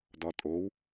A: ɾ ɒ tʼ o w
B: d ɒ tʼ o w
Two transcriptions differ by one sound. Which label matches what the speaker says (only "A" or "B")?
B